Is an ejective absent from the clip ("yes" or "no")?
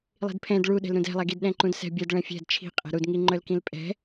no